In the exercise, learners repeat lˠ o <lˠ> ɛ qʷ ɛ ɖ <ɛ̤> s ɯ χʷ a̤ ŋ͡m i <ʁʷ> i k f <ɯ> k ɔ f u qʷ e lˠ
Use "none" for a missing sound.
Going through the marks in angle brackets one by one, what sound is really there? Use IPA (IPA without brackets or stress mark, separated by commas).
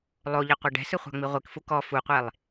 ʎ, ɛ̤, ʁʷ, u